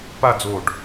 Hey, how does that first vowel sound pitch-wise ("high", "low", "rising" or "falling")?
falling